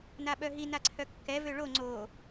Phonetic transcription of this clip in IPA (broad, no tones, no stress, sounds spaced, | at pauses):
n a ɓ œ ɦ i n a ǀʰ œ kː ɛ v ø ɭ o ŋ͡ǀ o